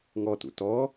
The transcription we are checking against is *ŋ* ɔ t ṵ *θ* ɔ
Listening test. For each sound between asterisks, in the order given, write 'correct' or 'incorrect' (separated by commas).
correct, incorrect